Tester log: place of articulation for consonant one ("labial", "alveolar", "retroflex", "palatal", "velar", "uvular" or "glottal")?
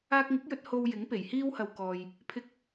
velar